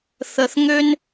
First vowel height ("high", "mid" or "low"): mid